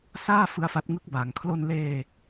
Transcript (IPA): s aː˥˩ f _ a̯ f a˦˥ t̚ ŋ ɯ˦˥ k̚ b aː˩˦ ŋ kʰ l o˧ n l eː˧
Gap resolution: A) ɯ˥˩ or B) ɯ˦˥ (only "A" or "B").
B